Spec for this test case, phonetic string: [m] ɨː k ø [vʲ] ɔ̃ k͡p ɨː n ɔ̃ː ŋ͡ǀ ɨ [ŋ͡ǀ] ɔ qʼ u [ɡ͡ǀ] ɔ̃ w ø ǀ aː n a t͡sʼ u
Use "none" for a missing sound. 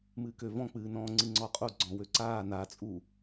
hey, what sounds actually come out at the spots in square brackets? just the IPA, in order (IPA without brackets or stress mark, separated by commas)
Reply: m, v, ŋ͡ǀ, ɡ͡ǀ